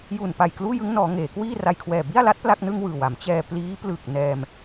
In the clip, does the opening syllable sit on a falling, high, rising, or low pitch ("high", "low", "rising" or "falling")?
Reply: low